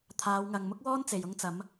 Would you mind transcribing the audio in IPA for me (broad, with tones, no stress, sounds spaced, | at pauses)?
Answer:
t̪ʰ aː˨˧ w ŋ ɐ˨ ŋ m ʊ˥ k̚ w ɔː˥ n t͡s e˨ j ʊ˧ ŋ t͡s ɐ˨˧ m